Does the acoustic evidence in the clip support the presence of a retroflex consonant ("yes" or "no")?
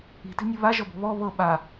no